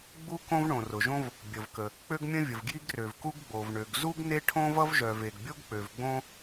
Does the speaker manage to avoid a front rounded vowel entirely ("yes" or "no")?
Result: no